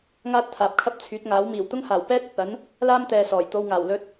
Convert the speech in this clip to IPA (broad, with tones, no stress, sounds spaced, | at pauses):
ŋ aː˥ t̚ t̪ʰ aː˨ p̚ kʰ ɐ˥ p̚ t͡sʰ yː˨˥ t̚ ŋ aː˨˥ w m iː˨˩ w t̪ ʊ˥ ŋ h aː˨˩ w p ɛː˥ t̚ ɵ˨ t̚ ɐ˨˥ n | l aː˥ m t̪ ɛː˨ s ɔː˨˩ j t̪ o˧ w ŋ aː˨˩ w l ɵ˧ t̚